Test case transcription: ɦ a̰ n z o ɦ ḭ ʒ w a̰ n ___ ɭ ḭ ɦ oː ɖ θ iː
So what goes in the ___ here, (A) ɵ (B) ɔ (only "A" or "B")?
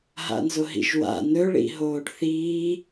A